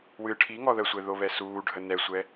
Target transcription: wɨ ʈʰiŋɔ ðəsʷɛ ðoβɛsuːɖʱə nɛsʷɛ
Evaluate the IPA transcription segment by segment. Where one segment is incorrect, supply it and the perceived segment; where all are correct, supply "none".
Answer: none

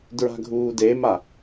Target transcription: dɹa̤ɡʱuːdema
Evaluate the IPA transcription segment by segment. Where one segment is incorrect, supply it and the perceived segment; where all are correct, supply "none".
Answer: none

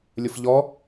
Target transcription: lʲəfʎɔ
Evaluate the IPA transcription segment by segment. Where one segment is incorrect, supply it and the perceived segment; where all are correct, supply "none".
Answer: none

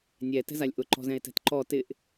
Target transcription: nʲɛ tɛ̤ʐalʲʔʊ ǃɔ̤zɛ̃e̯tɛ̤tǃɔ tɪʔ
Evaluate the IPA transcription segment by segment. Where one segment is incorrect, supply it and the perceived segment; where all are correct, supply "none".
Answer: ʐ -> z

